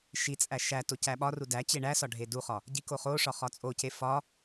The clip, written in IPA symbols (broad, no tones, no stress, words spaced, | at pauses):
ʃit͡sʼæ ʃæ tocæɓɒru dæt͡ɕe ɳæ sɒɖʱeduχɒ | ɟikoχoʂɒ χɒt͡sʼoce fɒ